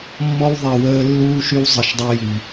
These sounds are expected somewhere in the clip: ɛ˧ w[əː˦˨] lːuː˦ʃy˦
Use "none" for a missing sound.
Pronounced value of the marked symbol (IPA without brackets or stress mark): əː˦